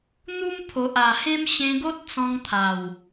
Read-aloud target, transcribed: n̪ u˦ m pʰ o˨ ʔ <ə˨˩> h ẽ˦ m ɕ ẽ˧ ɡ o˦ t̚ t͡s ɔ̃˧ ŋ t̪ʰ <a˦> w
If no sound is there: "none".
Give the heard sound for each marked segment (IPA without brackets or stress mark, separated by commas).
a˨˩, a˨˩